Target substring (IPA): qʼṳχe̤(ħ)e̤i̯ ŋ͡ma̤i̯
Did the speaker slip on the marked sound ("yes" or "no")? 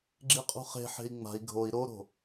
no